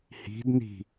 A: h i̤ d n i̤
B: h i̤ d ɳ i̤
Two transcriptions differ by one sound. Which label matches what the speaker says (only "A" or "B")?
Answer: A